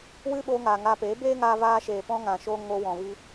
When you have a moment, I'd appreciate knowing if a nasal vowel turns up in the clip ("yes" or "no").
yes